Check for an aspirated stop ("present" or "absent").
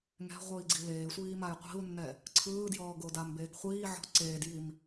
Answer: present